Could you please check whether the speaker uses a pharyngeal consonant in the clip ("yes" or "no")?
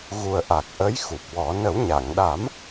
no